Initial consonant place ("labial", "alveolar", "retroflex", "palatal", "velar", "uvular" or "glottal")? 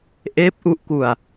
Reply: glottal